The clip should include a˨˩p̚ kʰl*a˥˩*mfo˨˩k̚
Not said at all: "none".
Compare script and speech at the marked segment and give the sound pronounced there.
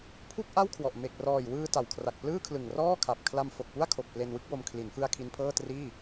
a˧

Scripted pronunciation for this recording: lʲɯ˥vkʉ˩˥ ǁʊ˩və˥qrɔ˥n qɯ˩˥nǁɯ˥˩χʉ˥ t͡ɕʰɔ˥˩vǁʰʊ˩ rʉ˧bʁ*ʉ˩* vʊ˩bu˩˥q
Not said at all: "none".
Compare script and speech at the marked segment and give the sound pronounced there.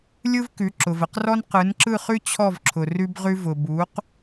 ʉ˧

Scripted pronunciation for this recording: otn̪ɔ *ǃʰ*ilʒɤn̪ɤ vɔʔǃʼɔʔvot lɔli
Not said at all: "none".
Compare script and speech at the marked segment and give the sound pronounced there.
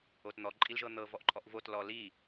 ǃʼ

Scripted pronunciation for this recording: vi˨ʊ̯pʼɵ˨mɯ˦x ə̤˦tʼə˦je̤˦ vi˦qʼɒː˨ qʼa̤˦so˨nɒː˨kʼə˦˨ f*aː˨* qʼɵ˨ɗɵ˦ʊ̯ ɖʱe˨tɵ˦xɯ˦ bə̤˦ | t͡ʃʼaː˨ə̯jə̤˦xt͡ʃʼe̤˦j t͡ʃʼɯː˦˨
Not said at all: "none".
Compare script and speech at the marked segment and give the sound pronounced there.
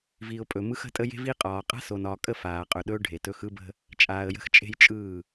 aː˨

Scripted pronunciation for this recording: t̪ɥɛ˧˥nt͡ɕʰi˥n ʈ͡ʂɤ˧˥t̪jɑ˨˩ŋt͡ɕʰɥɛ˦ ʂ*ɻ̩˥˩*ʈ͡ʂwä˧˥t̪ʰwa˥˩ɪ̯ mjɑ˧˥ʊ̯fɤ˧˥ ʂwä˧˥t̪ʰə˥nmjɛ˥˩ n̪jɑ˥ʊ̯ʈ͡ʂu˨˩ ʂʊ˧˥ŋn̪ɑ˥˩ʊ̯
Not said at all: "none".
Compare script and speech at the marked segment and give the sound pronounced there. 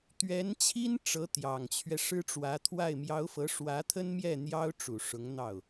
ɻ̩˥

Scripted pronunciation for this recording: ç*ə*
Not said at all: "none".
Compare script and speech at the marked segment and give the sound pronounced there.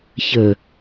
ə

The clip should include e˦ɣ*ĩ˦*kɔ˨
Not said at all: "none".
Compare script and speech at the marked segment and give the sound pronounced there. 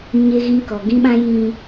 ĩ˦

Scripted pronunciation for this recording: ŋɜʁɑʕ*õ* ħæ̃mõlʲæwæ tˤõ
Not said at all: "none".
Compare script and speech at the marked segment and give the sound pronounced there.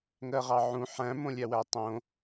ũ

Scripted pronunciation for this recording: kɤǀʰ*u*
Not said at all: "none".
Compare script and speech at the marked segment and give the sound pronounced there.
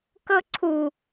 u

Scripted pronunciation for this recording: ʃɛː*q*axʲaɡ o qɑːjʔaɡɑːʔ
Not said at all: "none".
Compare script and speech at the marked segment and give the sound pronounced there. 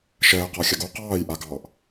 q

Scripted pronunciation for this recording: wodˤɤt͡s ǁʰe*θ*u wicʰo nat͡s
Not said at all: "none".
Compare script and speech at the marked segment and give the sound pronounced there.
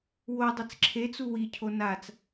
t͡s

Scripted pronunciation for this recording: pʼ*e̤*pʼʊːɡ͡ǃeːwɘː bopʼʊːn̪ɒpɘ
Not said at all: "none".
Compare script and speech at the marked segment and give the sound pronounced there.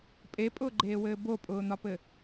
e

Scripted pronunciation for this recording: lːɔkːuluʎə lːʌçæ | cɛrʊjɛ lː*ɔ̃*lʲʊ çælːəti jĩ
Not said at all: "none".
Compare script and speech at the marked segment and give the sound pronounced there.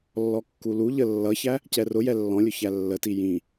ɔ̃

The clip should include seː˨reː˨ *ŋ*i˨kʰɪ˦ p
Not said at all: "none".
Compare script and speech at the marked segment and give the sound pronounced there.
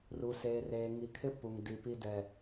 ŋ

